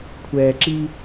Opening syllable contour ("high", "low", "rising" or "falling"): low